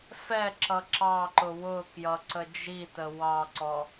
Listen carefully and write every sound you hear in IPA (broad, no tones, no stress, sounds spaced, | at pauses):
f ɛ ǁ ʌ ǁ ɑ ǃ ʊ w ʊ k j ʌ ǀ ə d͡ʒ i t ə w ɑ ǀ ɔ